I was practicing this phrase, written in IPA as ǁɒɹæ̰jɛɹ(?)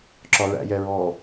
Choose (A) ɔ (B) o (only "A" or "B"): A